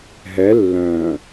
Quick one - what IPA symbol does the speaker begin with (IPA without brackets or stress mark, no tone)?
ɦ